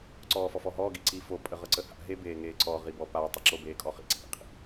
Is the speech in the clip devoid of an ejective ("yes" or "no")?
no